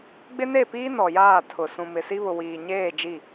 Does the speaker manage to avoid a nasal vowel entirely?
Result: no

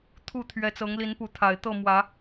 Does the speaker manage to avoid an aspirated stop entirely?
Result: no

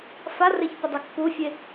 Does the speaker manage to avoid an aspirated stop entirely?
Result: yes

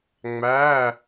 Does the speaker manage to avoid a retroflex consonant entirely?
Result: yes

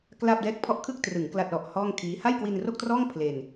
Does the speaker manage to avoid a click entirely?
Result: yes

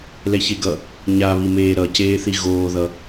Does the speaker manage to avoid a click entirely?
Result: yes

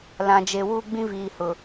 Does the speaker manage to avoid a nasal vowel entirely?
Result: no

